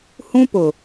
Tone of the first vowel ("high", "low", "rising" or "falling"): high